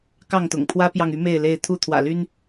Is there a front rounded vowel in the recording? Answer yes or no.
yes